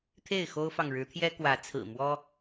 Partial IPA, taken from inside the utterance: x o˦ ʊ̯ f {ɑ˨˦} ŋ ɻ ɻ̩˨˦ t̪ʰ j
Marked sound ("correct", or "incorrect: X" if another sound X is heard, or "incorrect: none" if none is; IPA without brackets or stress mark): incorrect: ɑ˨